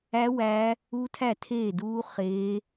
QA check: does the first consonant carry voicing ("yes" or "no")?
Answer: yes